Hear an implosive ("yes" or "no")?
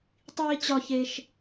no